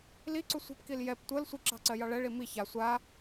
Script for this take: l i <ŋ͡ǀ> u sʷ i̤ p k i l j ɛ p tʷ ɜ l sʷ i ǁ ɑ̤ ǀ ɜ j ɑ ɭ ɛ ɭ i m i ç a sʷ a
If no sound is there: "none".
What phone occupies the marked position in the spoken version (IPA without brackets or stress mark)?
ǀ